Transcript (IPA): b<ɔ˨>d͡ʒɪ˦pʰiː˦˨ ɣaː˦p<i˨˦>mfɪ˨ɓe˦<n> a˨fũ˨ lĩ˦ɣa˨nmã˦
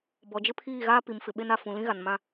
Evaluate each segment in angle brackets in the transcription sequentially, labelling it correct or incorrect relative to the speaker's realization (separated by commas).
correct, correct, correct